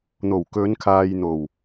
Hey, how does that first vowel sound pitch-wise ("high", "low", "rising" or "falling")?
low